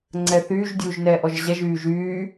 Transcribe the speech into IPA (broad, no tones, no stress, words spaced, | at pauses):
ŋ͡ǀɛθyːʒ dʲuːʒnɛːʔɔʒʑɛʒ yːʒyː